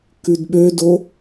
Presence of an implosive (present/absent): present